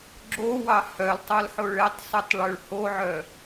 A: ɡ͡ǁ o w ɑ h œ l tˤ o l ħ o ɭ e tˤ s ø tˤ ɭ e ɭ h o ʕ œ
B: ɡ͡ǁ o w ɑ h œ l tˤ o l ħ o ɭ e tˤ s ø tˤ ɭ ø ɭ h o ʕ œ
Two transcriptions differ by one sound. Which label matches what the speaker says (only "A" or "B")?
B